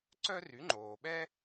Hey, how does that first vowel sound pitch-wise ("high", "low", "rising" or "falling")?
high